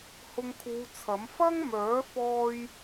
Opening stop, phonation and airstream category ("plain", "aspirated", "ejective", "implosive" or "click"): aspirated